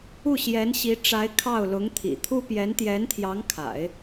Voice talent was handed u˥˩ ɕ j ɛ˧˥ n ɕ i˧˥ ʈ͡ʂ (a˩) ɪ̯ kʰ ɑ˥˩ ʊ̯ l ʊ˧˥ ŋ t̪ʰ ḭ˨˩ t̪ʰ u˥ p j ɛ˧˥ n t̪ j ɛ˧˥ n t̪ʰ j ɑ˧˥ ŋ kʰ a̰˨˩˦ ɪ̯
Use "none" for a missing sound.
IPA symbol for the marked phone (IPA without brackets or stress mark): a˧˥